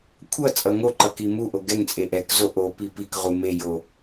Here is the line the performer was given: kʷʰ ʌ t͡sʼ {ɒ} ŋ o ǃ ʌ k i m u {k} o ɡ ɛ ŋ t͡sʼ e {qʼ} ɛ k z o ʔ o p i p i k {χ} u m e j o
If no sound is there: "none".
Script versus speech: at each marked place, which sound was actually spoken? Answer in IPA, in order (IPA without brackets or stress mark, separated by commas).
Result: ʌ, ʔ, ʔ, ʁ